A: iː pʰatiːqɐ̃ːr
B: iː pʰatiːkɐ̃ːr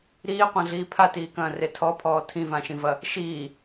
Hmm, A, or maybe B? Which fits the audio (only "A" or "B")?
B